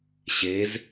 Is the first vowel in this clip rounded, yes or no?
no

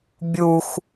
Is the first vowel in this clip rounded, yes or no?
yes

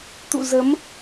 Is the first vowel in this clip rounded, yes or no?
yes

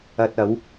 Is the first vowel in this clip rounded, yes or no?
no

